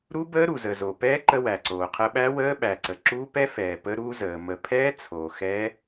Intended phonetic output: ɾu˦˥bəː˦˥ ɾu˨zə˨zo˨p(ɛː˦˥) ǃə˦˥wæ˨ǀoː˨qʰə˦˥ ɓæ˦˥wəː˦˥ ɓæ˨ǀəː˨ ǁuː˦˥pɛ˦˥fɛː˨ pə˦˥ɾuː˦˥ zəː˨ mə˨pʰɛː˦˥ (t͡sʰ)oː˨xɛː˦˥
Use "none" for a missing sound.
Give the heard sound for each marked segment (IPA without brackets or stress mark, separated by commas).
ɛː˦˥, t͡sʰ